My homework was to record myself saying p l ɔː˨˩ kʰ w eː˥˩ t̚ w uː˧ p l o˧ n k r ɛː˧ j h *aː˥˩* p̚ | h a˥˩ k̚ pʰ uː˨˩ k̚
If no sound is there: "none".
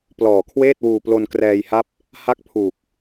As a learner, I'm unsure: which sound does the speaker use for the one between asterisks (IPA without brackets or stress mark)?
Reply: a˥˩